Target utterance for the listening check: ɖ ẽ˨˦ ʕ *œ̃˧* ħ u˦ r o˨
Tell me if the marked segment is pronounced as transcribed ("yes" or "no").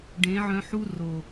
yes